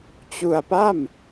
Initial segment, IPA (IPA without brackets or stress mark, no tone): t͡ɕ